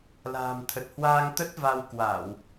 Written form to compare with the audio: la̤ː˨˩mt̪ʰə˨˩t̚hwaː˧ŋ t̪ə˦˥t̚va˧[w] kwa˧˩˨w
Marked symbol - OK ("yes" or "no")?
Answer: yes